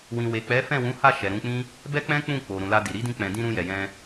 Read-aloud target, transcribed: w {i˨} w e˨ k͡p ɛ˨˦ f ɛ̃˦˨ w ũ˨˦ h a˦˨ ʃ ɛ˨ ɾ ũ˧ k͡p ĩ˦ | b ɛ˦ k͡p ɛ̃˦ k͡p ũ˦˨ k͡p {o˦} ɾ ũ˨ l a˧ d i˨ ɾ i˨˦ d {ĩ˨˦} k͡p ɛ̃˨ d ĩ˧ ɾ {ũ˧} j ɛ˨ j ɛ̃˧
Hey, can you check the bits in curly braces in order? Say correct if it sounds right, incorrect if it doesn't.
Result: incorrect: ĩ˨, incorrect: o˨, incorrect: ĩ˧, correct

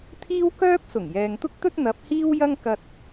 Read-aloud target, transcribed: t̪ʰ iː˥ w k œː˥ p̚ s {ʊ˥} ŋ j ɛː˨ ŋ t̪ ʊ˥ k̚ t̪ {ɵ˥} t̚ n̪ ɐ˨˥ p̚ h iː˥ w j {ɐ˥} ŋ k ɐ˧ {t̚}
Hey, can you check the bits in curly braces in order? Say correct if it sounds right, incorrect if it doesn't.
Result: incorrect: ʊ˨˩, correct, correct, correct

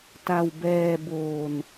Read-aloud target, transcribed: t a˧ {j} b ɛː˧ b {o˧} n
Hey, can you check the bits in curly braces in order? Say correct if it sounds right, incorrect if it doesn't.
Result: incorrect: w, incorrect: oː˧

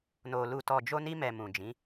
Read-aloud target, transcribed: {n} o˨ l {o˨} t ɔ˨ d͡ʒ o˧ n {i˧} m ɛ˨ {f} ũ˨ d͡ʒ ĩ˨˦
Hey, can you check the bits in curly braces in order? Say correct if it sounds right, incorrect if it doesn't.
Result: correct, incorrect: u˨, correct, incorrect: m

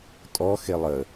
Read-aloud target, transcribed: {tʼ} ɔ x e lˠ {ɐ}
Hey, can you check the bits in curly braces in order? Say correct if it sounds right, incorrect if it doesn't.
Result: correct, incorrect: ə

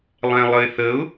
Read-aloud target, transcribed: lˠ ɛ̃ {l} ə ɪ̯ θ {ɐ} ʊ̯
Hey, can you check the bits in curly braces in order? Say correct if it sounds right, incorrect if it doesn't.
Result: incorrect: lˠ, incorrect: ə

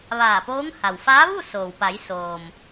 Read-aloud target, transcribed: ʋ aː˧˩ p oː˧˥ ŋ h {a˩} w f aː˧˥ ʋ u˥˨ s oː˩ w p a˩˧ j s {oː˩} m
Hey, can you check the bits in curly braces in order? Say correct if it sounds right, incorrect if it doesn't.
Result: correct, correct

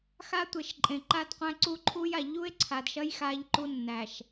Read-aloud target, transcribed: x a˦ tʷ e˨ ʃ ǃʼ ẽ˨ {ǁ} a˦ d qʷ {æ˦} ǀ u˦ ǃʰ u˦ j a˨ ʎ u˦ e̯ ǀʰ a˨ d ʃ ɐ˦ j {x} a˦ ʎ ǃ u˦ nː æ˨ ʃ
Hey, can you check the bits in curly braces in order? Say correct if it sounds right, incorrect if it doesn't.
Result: incorrect: ǃ, incorrect: æ̃˦, correct

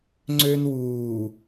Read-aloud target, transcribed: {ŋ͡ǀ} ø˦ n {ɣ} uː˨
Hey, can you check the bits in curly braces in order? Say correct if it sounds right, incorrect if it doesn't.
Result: correct, incorrect: w

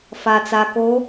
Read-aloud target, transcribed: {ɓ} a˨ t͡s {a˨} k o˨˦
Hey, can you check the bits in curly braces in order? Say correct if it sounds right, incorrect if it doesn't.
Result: incorrect: f, correct

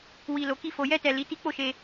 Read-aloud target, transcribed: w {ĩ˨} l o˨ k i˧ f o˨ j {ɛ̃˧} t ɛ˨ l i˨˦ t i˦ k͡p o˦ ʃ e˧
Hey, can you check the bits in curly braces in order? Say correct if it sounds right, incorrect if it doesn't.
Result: incorrect: i˨, incorrect: ɛ˧

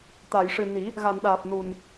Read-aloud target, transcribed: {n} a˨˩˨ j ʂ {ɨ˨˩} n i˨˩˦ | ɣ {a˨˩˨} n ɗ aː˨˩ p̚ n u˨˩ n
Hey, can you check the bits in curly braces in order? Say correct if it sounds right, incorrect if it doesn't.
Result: incorrect: t̪, correct, correct

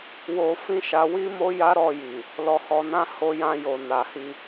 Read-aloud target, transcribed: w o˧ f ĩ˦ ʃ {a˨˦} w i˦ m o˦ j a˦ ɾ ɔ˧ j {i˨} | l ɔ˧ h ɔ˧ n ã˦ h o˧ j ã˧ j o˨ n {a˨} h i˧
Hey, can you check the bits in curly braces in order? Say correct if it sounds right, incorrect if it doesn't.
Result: incorrect: a˧, correct, correct

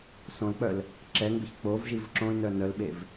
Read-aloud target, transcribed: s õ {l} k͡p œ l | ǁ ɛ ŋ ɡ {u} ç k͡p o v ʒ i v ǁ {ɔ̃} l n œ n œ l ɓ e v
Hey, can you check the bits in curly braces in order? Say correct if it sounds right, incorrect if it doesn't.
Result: correct, incorrect: ʏ, incorrect: õ

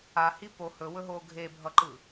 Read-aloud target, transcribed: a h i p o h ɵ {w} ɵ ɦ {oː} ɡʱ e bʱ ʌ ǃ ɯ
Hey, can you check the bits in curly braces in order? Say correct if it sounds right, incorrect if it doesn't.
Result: correct, correct

